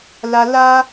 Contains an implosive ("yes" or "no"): no